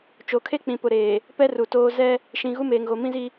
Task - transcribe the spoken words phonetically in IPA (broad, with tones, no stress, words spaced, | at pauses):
t͡ʃo˨kʰe˦ k͡pĩ˨pʊ˨ɾeː˨ | pɛ˦ru˨toː˦ zɛ˦ | ʃĩ˨ ɣu˦meː˨ŋɣo˨ mĩ˦zi˦